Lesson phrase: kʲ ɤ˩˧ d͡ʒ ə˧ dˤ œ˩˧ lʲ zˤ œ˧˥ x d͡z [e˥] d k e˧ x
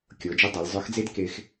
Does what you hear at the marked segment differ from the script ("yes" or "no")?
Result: no